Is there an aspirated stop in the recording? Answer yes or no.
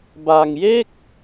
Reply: no